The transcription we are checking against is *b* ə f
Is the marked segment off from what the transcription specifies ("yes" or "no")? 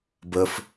no